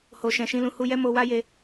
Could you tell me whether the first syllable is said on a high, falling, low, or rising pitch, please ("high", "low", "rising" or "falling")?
low